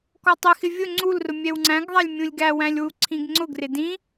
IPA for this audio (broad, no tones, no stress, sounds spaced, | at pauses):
k ɔ tˤ ɪ x ɪ vʲ ʊ ŋ͡ǀ u l r ʊ mʲ ɛ w ŋ͡ǀ æ̃ ɡ ðˤ æ lʲ mʲ ũ lʲ ɡ æ w æ̃ lʲ w u ǀʰ ĩ ɡ ŋ͡ǀ ʊ ɡ r ɪ d ĩ